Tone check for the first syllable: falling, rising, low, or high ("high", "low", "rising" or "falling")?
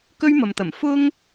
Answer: high